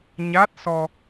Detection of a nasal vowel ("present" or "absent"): absent